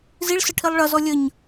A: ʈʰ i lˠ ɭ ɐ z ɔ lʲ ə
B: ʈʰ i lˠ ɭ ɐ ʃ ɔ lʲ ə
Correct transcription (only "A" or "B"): A